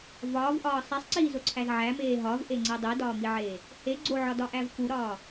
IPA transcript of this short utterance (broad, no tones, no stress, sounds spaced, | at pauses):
v ɒː v ʔ ɒː sˤ e sˤ ǀ iː z o ǀʰ æ z ʕ æ m eː ɦ ɒ v ʔ e ŋ͡ǀ e dˤ i d ɒː m i ʕ eː | h e ɡ͡ǀ o ʕ ɒ d ɒ ʔ æ v k u ɾ ɒː